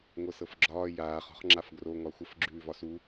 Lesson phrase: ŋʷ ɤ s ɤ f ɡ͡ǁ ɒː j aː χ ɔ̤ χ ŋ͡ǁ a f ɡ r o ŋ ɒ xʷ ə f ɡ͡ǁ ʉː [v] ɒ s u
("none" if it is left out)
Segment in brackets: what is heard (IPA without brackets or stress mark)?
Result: v